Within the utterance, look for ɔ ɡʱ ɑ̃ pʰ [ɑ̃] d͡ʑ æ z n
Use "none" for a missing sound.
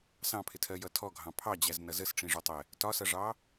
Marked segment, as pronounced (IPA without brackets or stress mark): ɑ